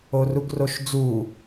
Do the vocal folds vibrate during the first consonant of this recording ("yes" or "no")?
yes